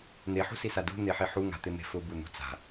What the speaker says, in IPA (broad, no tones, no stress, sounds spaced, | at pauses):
n̪ e ħ ṳ s i s a d ṳ n̪ e ħ i ħ u ŋ a̤ t̪ ɪ m e̤ f ʊ b u n̪ ṳ t͡s a̤